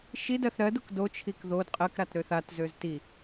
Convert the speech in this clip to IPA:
ʃidɜθ ɾɜduk dot͡ʃʰik ðod qʼɜkɾat ɾøθatzøz ti

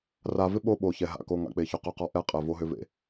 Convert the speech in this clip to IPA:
ra˨vɪ˦ ɓo˦ɓo˨çɛ˨ ɦa̰˨ko˨ ŋa̰˨k͡pe˨çʏ˨ qʏ˦˨qɔ˦ ʔɛ˦qʼɛ˨ vo˦ɦʏ˦vḛ˦

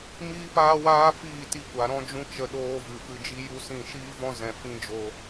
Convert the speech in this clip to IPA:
miː˦paː˦waː˦fiː˦˨ ti˧kʷa˨ ɾɔ̃˦d͡ʒũ˦t͡ʃə˧ ɗoː˧ vɨ˨ fɨ˧d͡ʒi˦ ju˦sĩ˦˨ ʃiː˦vɔ̃˦ zɛ̃˧ fĩ˦ d͡ʒo˧

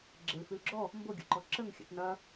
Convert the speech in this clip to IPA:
ɡ͡ǁelfʉlɡ͡ǁɔ | mboɡʲo̰ǃɔ ǁəŋxʲə̰t nɐ

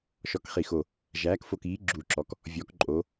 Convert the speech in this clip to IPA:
ʃɔ˨˩kχi˨˩xo˨˩ | ʒæː˩˧kfo˨˩kiː˩˧ ɡ͡ǁu˨˩ǁɔ˩˧k | vʲɔ˩˧kǃʼo˩˧

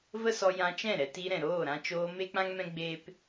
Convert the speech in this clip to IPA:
və˦sɔ˧ jã˧t͡ʃɛ̃˦˨ɾɛ˧ti˧ ɾɛ̃˨ɾoː˦˨ɾã˧t͡ʃoː˧ me˦k͡pã˦ŋmɛ̃˦ ɡ͡be˦p

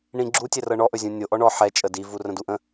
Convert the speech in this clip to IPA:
ɳĩ ɡ͡ǁutʲɛrɤ ɳɔʔɵzʲũ nʲo ʔɔɳɔ ħɛ t͡ʃʼədivurə̃ duʔə̃

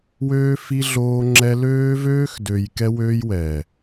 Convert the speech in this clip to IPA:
wøː˦fi˦ ɮoː˦ŋ͡ǁɛ˦ løː˦vøː˦xdø˨j kɛ˦wøː˦jwɛ˨

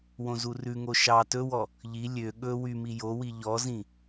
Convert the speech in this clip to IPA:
wõzurʉŋo ʃɑ tɵwɔ | ʎi lʲø ɠɵ wymi jowi ʎɔzĩ

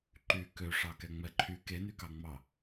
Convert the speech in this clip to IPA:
ǃy kø ʂɑkɛŋ͡mɛǃʰy kenykɑŋ͡mɑ

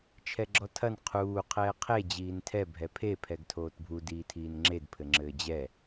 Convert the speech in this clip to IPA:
t͡ʃʰɛɡ͡ǁɔtʰɐn qʰuː qʰɛːqʰe d͡ʑiːntʰɛ bʱɛpʰe pʰɛɡtʰoːtbʱu diːtʰiːnŋ͡ǁed pʰɘŋ͡ǁɘːd͡ʑɛ

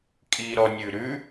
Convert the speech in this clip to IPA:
kʼiɾɔnʲʉɾʉ

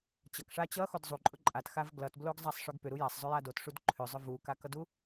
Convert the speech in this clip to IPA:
t͡ɕʌkʂa t͡ɕʌxod zˤuǃʼʊ ǃʼatxav ɡlʌtbloɡzˤasˤʂʊɡ pʏɾu jasˤzˤʏja dotʂud ǃʰʏzˤʏ vukakʌdu

